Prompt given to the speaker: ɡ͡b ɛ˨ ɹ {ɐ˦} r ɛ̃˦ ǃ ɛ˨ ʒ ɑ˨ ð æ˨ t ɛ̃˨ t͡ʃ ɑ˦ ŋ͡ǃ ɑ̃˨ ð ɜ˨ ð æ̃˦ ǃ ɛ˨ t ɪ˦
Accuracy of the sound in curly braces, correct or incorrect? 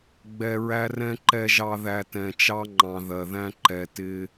incorrect